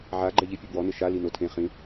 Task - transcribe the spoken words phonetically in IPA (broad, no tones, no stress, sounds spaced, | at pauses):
ʕ a ɡ͡ǃ ɛ ʎ i pʲ ʊ b w ɔ n ɪ ʃ a l i n o tʰ ẽ χ ĩ